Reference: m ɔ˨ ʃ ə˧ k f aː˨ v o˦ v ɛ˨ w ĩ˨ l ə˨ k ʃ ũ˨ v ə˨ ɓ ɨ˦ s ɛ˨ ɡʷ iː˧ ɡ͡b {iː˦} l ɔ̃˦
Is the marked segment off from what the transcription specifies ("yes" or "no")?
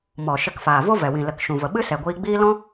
no